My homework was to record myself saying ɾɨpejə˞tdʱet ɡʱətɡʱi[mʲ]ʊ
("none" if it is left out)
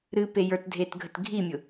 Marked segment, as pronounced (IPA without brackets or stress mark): mʲ